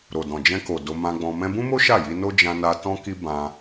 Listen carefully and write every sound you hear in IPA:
ɾ o˨ d ɔ̃˨ d͡ʒ ɛ̃˧ k o˨ d o˧ m ã˧ ɡ͡b ɔ̃˧ m ɛ̃˧ b ũ˦ m o˦ ʃ a˦˨ j i˧ n o˦ d͡ʒ ã˧ n a˧ t ɔ̃˦ k i˦ b ã˧

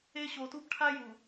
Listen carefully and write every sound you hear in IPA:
e˦ ɕ o˨ t u˦ b ʈʰ a˦ j u˨

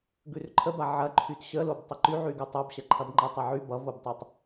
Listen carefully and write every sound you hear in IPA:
ɡ ʉ r ǃʰ ə b a ʕ ɐ ǃʰ y t ɕ ə l o b tˤ ə ǃ y ʕ y ɡ ʉ tˤ o b ɕ ɐ ǃʰ ɐ b ŋ͡ǃ ɐ tˤ ʌ ʕ y b ʌ v o b tˤ o tˤ

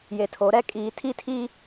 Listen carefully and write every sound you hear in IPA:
j e˨ tʰ o˨˦ ɾ ɛ˦ kʼ iː˨˦ tʰ i˦ tʰ i˦

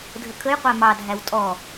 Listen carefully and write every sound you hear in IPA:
dʱ ə kʰ ə j qʷ æ m ɑ dʱ æ w tʼ ɔ

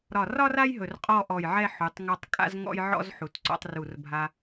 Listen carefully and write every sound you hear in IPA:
ɾ ɒ˧˩ r ɒ˥ r a˥ j ɦ ɵ˧˩ r qʼ ɔ˥˧ ʔ ɔ˧˩ j ʕ ɛ˥˧ ħ u˩˧ tˤ ŋ ɔ˧ tˤ kʼ a̰˥ z ŋ ɔ̰˥ j ʕ ɔ̰˥ z ħ u˩˧ t ǀ ɔ̰˧ tˤ r u˧˩ r bʱ a˧

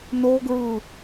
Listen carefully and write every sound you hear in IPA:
n o ɡ ɹ ɯ

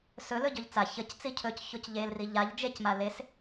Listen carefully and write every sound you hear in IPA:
s ɵ l ɵ ɟ ɵ ʎ t͡s a ç ə c t͡s i cʰ ɵ c ç o c ʎ e l r i ʎ a ʎ d͡ʒ e c m a l e s

